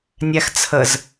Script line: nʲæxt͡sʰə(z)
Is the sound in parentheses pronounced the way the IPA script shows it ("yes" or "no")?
yes